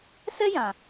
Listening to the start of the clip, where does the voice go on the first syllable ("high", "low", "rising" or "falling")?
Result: high